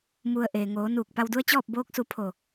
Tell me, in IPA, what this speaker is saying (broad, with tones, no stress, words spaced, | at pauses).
mu˩ə̯ ʔeː˩ŋoː˩˧ nuː˧˩k̚ pa˧wdu˧˥ə̯ t͡ɕɔː˥˨p̚boː˧˥k̚su˧ pʰo˧˩